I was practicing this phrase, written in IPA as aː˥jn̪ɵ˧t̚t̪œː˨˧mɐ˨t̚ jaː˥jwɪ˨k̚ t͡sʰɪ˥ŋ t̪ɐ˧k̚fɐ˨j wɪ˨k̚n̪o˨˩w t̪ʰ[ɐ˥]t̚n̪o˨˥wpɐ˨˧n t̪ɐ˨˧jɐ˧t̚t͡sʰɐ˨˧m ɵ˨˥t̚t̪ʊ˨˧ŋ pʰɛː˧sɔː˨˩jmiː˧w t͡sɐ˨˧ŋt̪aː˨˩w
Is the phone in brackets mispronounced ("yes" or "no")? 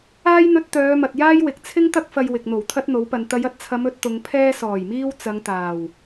no